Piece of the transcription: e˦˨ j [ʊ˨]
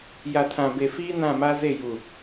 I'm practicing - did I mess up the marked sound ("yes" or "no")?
yes